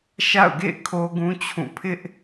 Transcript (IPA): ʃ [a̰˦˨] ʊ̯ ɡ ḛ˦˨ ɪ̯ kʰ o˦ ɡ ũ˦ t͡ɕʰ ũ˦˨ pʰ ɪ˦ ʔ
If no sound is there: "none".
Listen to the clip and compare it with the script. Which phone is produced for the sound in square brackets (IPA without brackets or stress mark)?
a̰˦˨